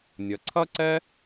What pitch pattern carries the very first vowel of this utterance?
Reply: low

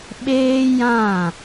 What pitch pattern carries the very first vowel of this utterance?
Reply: high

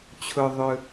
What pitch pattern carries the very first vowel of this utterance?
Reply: low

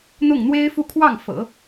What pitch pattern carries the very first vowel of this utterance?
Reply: falling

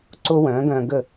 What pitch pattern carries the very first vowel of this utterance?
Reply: high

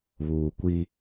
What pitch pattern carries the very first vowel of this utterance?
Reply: low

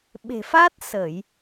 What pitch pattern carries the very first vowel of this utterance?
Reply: low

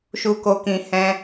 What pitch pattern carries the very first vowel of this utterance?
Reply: low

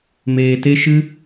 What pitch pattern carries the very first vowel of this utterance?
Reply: low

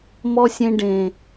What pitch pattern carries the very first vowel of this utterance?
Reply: low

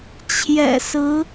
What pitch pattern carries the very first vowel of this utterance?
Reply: low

